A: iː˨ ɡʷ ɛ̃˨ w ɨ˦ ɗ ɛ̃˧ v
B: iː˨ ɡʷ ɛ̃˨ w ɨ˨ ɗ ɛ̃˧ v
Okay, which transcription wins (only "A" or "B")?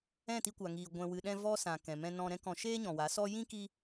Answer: B